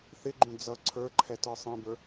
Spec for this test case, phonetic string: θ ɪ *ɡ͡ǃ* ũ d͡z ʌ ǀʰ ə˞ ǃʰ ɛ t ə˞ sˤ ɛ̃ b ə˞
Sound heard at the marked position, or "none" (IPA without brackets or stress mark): ɡ͡ǃ